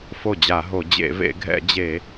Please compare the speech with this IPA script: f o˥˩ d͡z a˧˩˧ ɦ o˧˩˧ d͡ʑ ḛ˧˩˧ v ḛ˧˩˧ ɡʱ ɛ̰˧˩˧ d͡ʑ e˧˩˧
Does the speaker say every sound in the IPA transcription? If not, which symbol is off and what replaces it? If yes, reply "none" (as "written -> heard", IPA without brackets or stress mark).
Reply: d͡z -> d͡ʑ